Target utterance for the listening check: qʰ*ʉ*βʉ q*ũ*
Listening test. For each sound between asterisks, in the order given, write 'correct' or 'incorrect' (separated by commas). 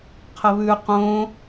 incorrect, incorrect